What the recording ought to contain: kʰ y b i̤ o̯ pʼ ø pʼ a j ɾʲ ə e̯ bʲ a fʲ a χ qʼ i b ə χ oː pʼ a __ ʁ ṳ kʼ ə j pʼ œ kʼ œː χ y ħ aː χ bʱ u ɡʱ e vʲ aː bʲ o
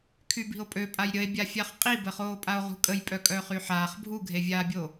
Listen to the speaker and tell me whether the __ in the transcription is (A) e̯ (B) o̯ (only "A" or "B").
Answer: B